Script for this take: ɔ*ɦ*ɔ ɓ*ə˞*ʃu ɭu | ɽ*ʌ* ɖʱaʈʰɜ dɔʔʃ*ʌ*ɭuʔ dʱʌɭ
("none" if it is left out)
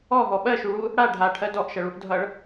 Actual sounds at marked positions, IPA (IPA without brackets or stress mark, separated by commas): ɦ, ɜ, a, ʌ